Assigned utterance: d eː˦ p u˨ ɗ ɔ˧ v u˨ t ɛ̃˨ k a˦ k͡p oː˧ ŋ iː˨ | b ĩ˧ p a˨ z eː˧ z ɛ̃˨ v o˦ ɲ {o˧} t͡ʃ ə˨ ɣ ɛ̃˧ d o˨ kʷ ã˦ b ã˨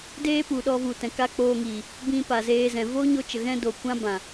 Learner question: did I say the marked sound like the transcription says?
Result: yes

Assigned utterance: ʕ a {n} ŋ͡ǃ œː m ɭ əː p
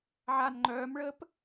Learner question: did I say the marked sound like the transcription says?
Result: yes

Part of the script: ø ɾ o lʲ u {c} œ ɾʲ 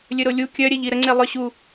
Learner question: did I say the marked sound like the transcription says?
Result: no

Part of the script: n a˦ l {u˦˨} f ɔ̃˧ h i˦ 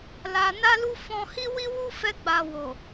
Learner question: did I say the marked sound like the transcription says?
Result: no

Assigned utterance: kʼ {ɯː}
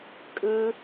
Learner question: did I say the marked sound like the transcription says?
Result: yes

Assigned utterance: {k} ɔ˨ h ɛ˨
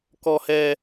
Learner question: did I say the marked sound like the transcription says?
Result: yes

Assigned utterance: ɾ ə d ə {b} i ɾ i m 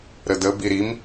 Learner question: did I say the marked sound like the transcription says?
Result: yes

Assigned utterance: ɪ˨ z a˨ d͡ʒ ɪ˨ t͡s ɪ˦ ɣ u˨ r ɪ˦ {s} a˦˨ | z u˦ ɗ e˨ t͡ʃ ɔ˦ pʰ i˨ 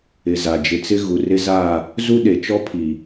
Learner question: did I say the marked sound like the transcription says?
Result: no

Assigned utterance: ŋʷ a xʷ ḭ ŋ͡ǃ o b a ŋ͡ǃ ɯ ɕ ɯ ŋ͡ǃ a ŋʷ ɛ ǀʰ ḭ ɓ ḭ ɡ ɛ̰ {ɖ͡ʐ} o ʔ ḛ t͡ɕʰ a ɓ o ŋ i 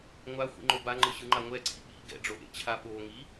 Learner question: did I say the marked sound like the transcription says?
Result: yes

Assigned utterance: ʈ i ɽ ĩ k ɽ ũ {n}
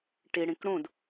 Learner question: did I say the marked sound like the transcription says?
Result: no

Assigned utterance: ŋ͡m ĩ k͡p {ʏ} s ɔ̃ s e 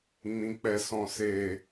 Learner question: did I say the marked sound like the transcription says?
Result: no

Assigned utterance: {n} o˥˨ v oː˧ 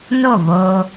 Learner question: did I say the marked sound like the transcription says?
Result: yes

